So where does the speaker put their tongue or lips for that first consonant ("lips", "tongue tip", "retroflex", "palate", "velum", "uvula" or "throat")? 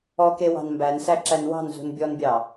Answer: velum